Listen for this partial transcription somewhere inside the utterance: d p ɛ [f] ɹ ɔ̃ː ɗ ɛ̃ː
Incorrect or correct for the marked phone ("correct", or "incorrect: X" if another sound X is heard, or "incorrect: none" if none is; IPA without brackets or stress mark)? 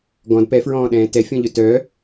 correct